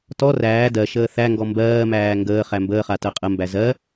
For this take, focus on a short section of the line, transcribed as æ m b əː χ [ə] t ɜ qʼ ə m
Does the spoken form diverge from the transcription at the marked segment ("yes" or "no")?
yes